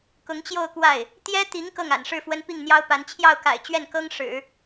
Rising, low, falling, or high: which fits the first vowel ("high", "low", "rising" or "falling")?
rising